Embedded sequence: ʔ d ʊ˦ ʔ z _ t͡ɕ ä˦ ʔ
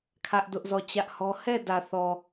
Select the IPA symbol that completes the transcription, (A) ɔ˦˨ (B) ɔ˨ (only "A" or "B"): A